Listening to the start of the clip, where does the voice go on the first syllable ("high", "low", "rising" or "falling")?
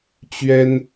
high